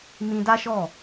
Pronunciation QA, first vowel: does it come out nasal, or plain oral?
nasal